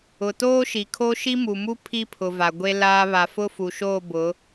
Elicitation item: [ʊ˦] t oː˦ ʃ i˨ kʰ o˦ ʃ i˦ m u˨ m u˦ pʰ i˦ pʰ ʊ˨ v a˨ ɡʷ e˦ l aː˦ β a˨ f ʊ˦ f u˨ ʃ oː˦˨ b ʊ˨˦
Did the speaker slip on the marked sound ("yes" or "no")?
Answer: yes